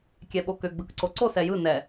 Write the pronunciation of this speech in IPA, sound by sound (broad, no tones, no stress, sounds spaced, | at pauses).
kʲ ɛ ɓ o k ʏ ɡ͡b ɯ k ǀ o ǀ o s ɛ j ɯ n ɛ